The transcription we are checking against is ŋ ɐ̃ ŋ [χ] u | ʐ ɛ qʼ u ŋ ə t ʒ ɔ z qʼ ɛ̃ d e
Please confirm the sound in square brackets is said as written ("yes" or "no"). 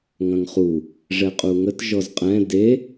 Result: yes